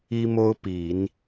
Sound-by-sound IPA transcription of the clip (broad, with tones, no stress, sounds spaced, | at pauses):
i˥ m o˥ ʊ̯ p i˨˩˦ n